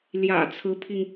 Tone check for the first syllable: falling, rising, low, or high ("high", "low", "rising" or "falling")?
low